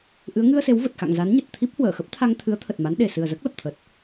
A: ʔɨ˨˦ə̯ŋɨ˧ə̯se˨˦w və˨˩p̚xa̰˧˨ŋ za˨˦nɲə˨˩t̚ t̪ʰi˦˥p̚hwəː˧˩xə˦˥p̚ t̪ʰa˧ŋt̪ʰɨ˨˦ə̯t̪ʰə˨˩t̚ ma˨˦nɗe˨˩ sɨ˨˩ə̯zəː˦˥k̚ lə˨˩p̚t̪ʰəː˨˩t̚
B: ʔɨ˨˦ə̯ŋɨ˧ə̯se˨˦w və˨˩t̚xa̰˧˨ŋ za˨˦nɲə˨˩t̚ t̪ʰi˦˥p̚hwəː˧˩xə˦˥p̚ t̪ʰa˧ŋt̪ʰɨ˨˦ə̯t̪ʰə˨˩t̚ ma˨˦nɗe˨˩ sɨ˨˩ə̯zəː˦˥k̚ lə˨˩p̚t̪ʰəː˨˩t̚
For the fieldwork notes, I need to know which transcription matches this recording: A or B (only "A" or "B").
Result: B